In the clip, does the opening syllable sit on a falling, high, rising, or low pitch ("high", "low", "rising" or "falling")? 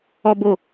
high